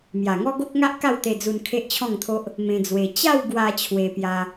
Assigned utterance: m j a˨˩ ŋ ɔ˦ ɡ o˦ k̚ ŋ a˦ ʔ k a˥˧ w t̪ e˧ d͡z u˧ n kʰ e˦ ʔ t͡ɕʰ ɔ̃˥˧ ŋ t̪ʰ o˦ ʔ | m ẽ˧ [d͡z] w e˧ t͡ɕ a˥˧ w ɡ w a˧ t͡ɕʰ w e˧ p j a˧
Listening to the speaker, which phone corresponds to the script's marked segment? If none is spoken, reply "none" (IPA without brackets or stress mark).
d͡z